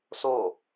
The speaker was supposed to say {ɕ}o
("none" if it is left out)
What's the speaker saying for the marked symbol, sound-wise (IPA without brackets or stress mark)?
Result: s